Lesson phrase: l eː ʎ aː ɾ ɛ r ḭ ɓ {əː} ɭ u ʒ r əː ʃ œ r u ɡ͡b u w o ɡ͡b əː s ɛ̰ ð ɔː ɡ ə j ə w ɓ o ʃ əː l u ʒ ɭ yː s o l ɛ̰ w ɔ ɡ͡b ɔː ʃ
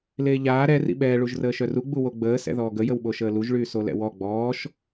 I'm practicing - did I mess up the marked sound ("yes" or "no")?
yes